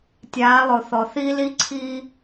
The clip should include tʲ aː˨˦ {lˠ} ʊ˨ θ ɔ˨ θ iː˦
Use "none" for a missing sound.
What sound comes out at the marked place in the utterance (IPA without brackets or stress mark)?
lˠ